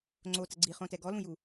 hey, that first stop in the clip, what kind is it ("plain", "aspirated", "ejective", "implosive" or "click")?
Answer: click